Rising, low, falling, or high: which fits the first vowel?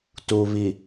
low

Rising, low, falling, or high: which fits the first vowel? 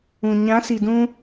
low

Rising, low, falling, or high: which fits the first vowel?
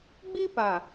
high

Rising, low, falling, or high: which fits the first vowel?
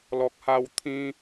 low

